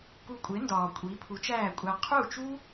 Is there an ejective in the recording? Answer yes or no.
yes